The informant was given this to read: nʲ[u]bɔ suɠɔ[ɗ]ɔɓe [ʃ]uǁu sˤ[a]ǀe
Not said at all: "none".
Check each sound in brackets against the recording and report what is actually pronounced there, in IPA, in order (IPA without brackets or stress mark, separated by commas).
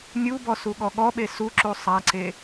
u, ɠ, s, a